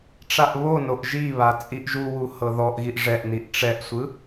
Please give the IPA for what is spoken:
ʈ͡ʂaʔβonoʔ ʒiβa t͡sʼiʔʒuwu hɤðɔʔɣiʔ ʐɛʔniʔ ʈ͡ʂɛʔsʷɯ

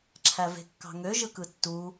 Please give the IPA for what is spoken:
ǁʰæve̤kːɑ̤ŋø ʒɯkɯtːu

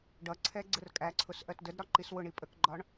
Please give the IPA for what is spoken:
ɖʌǀʰɛ ɡ͡ǀərkʼæǀʰʊs ʔɜtdədɾɒ ǃiswʊɳi pʼəkɡ͡ǃɒɳ

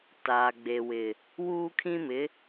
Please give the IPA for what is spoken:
taː˨ɡ͡be˨wɪ˨ | wuː˦kʰĩ˦mɪ˨˦

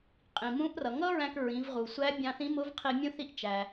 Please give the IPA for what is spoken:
qʼĩ˩mũ˧˥ʔrʌ˩ ŋʌ˥ɹæ̃˧k ɹĩ˩˧vʁu˩sʷæ˧˥ bʲɑ̃˧θĩ˧˥mʊ˧˥vqʰi˧ mʲũ˧θi˧ʔ t͡ʃæ˩

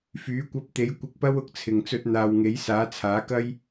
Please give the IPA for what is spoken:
fyː˨˥kʷɐ˧p̚t̪e˨˥j kʷɪ˧k̚pɐ˥wʊ˧k̚t͡sʰɪ˨ŋ t͡sɵ˧t̚ n̪aː˨wŋe˨˥j saː˨˥t͡sʰaː˨˥kɐ˥j

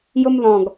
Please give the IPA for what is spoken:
jʊmðɔ̃ɡ

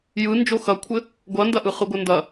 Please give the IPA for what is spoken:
jɯ nd͡ʒoxɐkʷʰɘ | ɡʷɐndɐʔɯ χɯɡʷɘndɐ

